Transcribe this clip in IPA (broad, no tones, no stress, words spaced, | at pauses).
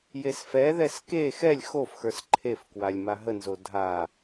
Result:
jesfɛðɛs ke xɛlʲ xofxə˞s ǃʰefkwalʲ maɦənzo dʱa